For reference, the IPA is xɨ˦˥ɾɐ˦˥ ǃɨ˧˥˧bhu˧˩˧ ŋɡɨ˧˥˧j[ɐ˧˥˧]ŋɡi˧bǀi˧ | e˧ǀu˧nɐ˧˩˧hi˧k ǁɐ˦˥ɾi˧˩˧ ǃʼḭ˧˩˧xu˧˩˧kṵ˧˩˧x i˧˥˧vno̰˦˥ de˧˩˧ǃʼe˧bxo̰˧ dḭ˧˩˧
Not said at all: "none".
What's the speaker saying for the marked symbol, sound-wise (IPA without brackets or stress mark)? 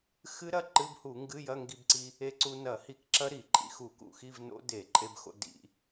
ɐ˧˥˧